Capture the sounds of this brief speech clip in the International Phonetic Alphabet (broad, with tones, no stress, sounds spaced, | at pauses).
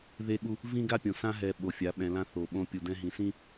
ð e˦ ɠ u˦ | v ĩ˦ ɡ a˦ pʲ õ˨ s ã˦ ɦ ɛ˨ ɓ o˨ fʲ a˨˦ ɓ ɛ̃˨ l ã˦ θ o˨ ɓ õ˦ pʲ u˨ d ɛ̃˦ ɦ ĩ˨ s ĩ˦